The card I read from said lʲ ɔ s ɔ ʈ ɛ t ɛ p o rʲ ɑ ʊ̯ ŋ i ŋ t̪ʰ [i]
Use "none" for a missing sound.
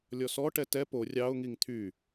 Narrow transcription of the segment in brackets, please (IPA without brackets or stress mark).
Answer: y